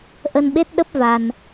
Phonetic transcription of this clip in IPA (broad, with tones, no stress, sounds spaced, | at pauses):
ʔ ə˧ n ɓ e˦˥ t̚ ɗ ə˦˥ p̚ v a˧ n